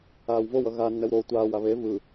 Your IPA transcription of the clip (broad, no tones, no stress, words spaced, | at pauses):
aːwvowʌ ɣa nːɛwɾo tʷaːwa βe vɯ